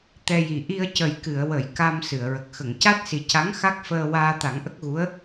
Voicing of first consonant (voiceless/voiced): voiceless